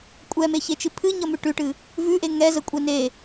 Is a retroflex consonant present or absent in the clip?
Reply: present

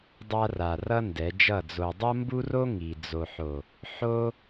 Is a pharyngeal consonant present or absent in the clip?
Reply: present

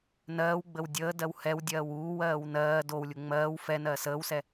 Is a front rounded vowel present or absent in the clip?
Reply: absent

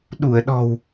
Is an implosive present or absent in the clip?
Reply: present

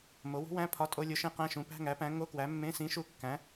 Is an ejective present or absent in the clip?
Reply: present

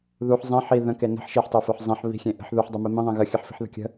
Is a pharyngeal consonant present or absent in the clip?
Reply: present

